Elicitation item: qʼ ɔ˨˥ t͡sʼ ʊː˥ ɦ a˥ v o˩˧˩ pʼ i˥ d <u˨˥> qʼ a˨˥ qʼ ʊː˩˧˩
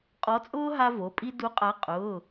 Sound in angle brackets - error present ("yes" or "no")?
no